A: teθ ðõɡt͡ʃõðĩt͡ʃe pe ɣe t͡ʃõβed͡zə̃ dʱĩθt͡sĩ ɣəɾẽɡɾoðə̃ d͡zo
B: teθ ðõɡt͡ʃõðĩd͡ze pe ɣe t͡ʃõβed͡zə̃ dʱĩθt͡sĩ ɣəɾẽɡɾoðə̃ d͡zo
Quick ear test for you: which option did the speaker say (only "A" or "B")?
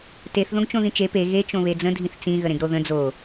A